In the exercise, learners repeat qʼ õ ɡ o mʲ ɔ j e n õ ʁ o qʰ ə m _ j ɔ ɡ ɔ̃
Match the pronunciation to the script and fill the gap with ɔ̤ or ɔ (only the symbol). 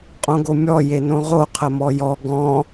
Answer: ɔ